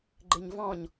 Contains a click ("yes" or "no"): yes